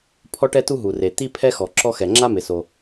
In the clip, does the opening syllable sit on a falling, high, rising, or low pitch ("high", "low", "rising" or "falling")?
high